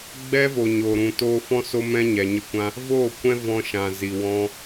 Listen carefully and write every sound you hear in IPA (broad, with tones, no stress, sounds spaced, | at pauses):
ɡ͡b ɛ˦ v o˨ ɲ oː˨ ɾ ũ˨ t oː˧ f ɔ̃˦ s o˦ m ɛ̃˦ ɲ ɛ˨ ɲ ə˧ kʷ ã˦ | v oː˦˨ kʷ ɛ̃˦ v ɔ̃˧ ʃ ã˨ z i˨ w ɔ̃˦